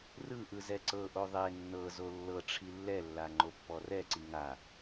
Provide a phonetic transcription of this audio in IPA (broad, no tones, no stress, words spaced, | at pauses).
rɯʔɯ zɛǀɤʔo ðˤe nːɤzo lːɤ ʈ͡ʂʰilːɛlːa ŋ͡ǃopːɔrɛǀi ŋa